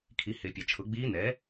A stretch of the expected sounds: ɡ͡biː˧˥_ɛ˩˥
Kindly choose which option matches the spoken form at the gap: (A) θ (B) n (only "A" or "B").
B